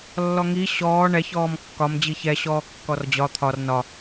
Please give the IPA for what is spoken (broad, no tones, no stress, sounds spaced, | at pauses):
lː ɔ ŋ i ɕ ɔː ɳ ɛ ç ɔː m kː ɒ m d͡ʑ i ç ɛ ɕ ɔː kː ɔ r d͡ʑ ɒ t̪ʰ ɒ r n ɒ